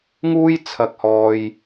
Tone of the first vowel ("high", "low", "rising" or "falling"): high